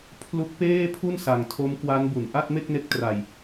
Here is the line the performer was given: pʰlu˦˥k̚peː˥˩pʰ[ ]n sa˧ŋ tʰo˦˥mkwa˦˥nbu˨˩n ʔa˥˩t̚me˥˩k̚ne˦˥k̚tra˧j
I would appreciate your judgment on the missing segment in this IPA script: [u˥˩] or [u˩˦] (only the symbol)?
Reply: u˥˩